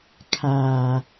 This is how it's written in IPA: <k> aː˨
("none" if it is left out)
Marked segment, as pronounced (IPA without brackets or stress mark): kʰ